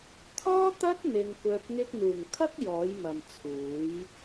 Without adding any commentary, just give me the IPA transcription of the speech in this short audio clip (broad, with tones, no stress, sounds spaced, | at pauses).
t̪ʰ ɔː˥ t̪ ɐ˥ t̚ n̪ ɪ˧ ŋ kʷ œː˧ p̚ ŋ ɪ˧ k̚ n̪ uː˨˩ ŋ kʰ ɐ˥ k̚ j ɔː˨˥ j m ɐ˨ m t͡sʰ uː˨˥ j